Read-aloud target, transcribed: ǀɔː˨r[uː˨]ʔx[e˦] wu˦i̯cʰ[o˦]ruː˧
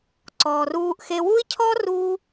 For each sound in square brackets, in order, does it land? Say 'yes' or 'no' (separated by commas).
no, no, no